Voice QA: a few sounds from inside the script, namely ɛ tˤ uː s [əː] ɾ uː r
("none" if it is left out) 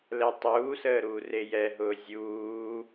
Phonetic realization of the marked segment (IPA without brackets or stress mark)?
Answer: əː